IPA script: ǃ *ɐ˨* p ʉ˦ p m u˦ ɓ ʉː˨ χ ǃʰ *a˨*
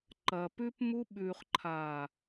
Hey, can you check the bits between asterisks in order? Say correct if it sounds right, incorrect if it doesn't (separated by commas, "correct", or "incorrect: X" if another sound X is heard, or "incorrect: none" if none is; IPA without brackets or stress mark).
correct, incorrect: aː˨